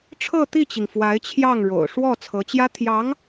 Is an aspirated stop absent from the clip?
no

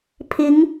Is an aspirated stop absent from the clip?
no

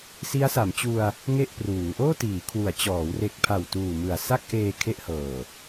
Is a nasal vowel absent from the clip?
yes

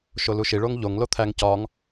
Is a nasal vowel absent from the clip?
yes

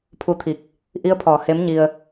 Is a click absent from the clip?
yes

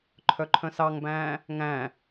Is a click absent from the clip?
no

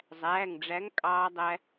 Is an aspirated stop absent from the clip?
yes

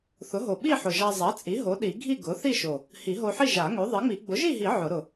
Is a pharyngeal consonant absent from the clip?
no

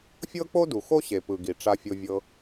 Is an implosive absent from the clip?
yes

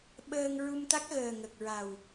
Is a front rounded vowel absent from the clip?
yes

